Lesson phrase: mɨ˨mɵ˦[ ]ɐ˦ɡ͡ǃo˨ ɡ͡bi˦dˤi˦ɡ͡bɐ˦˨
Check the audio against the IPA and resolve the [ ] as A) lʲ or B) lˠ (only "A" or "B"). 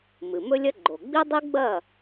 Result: A